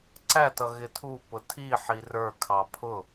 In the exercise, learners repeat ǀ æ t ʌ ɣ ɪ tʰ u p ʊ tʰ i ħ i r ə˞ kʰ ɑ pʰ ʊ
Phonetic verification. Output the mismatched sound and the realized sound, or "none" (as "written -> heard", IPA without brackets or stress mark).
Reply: none